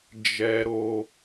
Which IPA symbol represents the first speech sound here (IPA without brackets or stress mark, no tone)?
d͡ʒ